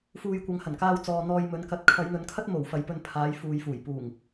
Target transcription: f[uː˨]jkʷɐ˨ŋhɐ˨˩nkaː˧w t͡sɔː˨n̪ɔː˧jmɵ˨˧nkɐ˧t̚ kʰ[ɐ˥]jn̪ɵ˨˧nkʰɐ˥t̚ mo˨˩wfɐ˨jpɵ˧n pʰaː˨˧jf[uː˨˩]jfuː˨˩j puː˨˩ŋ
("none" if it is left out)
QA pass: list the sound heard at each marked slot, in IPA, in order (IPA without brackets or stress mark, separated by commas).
uː˨, ɐ˨˧, uː˨